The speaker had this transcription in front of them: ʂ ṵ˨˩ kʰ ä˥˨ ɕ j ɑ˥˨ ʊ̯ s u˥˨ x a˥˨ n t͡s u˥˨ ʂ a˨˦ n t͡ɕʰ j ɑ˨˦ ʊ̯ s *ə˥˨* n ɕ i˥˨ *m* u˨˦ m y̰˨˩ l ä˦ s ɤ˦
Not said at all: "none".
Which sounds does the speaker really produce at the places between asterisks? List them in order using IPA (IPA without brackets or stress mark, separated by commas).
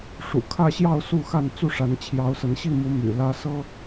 ə˨˦, m